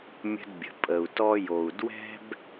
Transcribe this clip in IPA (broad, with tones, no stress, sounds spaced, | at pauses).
mʲ ə̤˧ d bʲ ə̤˩ pʼ ə˩ u̯ t ɔ˧ j o˩ u̯ d w ɛ̤˥ b